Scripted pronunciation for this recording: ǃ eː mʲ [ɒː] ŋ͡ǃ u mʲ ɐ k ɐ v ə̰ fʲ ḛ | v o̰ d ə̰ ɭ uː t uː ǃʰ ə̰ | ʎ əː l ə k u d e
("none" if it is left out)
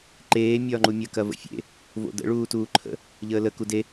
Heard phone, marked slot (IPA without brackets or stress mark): ɒː